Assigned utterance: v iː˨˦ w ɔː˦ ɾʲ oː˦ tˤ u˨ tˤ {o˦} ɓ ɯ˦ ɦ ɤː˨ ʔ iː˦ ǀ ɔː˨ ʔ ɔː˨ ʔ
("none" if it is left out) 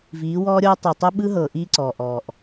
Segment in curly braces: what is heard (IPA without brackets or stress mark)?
o˦